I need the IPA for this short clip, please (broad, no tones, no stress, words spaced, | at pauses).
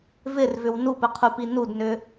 vɪrvʏw nupɘqʰupi nudnʏ